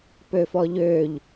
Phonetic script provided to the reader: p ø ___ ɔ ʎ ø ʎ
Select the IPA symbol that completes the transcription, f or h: f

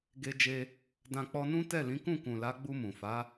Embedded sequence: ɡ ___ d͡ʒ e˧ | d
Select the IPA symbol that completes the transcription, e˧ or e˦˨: e˧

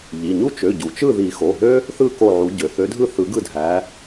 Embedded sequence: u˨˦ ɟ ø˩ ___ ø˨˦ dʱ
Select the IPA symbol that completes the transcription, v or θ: θ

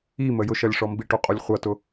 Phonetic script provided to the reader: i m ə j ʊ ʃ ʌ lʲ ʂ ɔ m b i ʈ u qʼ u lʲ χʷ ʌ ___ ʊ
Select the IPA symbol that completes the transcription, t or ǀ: t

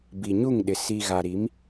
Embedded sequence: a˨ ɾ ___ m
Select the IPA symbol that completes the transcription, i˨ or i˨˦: i˨˦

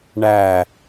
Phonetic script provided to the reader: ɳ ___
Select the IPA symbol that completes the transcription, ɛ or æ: æ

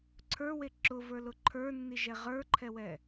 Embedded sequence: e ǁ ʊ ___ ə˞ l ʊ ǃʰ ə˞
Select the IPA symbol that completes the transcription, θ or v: v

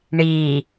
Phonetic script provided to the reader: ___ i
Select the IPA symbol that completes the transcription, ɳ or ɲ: ɳ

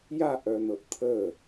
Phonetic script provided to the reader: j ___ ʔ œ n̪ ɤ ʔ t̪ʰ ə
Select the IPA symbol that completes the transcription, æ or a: a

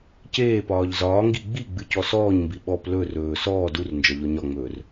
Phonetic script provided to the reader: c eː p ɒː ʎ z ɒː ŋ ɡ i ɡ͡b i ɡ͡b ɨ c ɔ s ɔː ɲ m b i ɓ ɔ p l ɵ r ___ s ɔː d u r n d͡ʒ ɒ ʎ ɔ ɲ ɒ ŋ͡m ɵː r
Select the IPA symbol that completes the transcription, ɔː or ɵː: ɵː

